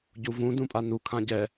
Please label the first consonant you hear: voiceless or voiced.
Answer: voiced